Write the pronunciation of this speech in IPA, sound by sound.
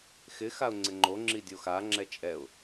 x ɪ x a ʊ̯ ŋ͡ǀ ɪ ŋ͡ǃ o ŋ͡ǁ i dʲ o x a ŋ͡ǁ ɛ t͡ʃʼ ɛ ʊ̯

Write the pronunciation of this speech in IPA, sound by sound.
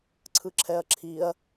ǀʰ ɯ ǁʰ ɛ ɐ̯ ǁʰ i ɐ̯

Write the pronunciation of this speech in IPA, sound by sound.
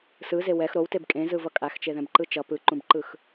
s ɯ z e w ɛ x ɾ o w t e b kʼ ẽ z ɯ v ʌ kʼ a x t͡ʃ e ð ɛ̃ b ǃ ɯ t͡ʃ ʌ p ɯ ǃ ũ b ǃ ɯ x

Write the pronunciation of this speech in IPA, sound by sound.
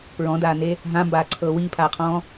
p ɹ ɔ̃ d aː n e | ɦ ã m b aː ǀʰ ɤː w iː pʰ aː qʰ ɔ̃ː

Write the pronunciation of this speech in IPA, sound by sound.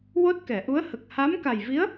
w o˦˥ t̚ k ɛ˨˩˨ ʔ u˧˥ ə̯ h ə˨˩ k̚ h a˧˥ m k a˨˩ j v i˧˥ ə̯

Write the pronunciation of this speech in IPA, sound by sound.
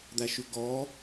d̪ æ ʃ ʉ ɡ ɔ

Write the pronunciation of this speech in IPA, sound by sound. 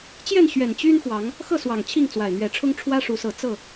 t͡ɕ j ɛ˥˨ n ɕ ɥ ɛ˨˩ n t͡ɕ y˦ n x w ɑ˨˦ ŋ | x ɤ˥˨ s w ɑ˨˩ ŋ t͡ɕʰ i˥˨ ŋ t͡s w a˨˩ ɪ̯ n̪ ɥ ɛ˨˦ ʈ͡ʂʰ ʊ˦ ŋ ʈ͡ʂʰ w ä˦ ʂ u˨˦ s ɤ˨˦ t͡s ɤ˥˨

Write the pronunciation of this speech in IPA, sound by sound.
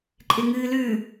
ǃʼ ɪ ŋ ɨː l ʉ

